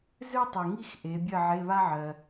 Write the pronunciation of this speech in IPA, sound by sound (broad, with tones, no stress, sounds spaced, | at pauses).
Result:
z ø˥ tˤ e˨ ŋ i˥˨ x ʔ e˨˦ bʲ ɜ˥˨ ʕ e˧˥˧ β a˥ ʕ ɜ˨